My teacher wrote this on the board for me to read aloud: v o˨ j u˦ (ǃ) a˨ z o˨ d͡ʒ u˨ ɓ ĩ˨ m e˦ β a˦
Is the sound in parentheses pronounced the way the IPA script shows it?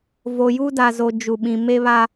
no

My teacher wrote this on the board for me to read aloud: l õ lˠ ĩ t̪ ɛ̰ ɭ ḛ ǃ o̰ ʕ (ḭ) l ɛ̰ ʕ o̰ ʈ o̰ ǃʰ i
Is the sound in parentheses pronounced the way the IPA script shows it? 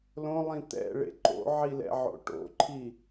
no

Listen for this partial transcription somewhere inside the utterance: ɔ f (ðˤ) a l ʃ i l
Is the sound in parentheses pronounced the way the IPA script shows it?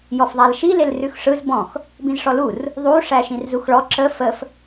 yes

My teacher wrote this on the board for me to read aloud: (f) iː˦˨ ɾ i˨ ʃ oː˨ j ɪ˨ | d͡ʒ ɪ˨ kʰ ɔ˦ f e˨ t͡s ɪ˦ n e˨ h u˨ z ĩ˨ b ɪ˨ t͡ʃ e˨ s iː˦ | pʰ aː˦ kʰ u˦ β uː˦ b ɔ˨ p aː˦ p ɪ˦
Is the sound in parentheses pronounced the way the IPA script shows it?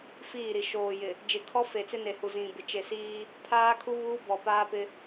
yes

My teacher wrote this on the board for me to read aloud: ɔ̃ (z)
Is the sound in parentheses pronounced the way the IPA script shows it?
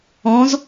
yes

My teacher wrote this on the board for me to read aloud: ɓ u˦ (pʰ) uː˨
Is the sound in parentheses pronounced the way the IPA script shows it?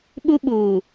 no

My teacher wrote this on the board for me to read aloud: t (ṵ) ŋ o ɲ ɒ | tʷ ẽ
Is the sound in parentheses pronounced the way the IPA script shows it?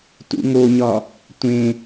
yes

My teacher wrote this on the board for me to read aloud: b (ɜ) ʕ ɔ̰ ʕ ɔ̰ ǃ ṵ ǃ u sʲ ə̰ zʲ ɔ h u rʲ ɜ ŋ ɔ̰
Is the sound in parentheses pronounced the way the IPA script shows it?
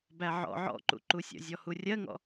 no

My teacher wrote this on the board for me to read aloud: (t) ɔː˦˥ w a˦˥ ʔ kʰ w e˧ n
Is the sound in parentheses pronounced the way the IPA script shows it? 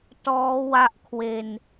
yes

